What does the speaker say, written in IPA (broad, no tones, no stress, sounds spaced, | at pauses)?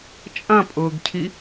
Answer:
t͡ʃʼ ɐ̃ pʼ ʊː ɡ cʰ i